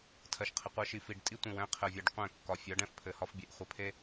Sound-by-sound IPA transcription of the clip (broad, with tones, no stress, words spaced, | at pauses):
tʰɜ˨ʃqʰɘ˨qʷɜ˦ ʃi˨fi˨ɖtʼi˦ tʷĩ˨wɛ̃˦qʰɘ˨ vʲe˨ɖqʷɛ̃˦˨kːɒ˨ fʲɒ˨˦ɖ ɛ̃˦f pʰɘ˨hɒ˦fbʲe˨ʔ χʷɘ˨pʰe˦